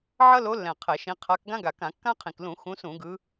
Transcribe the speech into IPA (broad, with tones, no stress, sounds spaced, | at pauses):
ʕ ʌ˦ l o˨˦ lː ɛ̃˨˩ qʰ ɛ˧˩˧ ʃ ĩ˨˦ qʰ a˨˦ k ɡ ã˦ ɡ a˨˩ k ã˧˩˧ kː ã˦ qʰ ĩ˨˩ k l ũ˧˩˧ x ũ˨˦ s ũ˧˩˧ ɡ ɯ˨˦